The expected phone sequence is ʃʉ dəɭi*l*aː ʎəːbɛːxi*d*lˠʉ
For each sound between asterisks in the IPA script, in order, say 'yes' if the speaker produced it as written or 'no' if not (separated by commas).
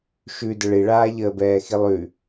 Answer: no, no